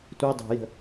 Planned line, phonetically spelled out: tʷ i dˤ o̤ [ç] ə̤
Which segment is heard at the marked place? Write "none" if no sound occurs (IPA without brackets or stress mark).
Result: j